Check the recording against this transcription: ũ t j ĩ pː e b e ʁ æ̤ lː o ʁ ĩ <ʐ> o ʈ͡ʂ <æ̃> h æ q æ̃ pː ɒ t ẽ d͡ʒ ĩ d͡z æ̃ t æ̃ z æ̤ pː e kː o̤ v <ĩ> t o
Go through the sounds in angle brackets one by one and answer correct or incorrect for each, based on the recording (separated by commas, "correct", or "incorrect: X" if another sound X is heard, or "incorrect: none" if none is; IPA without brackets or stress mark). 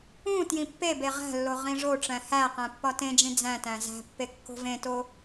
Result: correct, correct, incorrect: ẽ